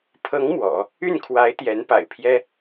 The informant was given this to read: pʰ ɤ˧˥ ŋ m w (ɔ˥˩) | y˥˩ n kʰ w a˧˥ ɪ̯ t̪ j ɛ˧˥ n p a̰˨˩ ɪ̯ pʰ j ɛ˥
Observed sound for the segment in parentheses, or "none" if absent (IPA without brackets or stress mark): ɔ̰˨˩˦